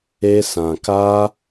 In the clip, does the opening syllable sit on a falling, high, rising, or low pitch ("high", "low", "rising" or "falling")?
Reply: high